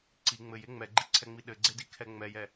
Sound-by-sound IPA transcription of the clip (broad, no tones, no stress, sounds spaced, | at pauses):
ǀ i ŋ͡m ɘ j e ŋ͡m ɛ ɡ͡ǃ i ǀʰ ɛ ŋ͡m i ɗ ɘ ɡ͡ǀ e d i kʰ ɛ ŋ͡m ɛ j ɛ